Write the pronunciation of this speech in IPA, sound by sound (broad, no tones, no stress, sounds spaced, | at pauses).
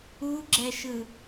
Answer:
u ɡ͡ǁ ɛ ʃ ɯ